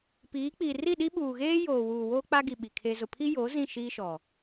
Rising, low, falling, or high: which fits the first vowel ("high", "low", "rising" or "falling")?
rising